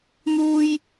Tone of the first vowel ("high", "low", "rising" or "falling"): high